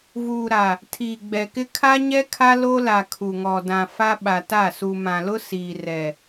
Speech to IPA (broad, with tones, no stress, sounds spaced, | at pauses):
v uː˨ ɾ a˨ | tʰ iː˨ ɡ͡b ɛ˨ k ɪ˦ kʰ a˦ ɲ ɛ˦ kʰ a˦ l o˦ l a˨ kʰ u˨ ŋ ɔ˨ d ã˨ f a˦ ɓ a˨ t a˦˨ s u˨ m ã˨ l ʊ˦ s iː˨ r ɛ˨